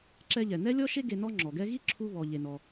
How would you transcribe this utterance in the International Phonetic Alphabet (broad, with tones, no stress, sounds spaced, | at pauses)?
ǁ ɛ˧ ʎ ɛ˩ n ɛ˥ lʲ ɔ˥ ʃ e˥ ɡ e˧ n ɔ˥ ŋ͡ǁ ɔ˩ ɡ ɛ˥ ɣ i˥ ǁʰ u˧ β ɔ˩ ʎ e˩ n ɔ˩